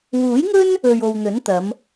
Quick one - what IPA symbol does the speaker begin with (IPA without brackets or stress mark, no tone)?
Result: w